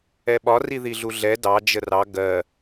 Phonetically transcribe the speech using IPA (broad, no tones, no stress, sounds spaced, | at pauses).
ɛ ɓ ɒ r i ð i ɮ u ɮ ɛ d ɑ d͡ʒ ə r ɑ ɡ ɜ